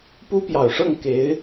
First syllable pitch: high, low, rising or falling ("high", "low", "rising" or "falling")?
high